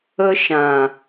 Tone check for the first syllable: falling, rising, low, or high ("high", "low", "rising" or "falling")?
high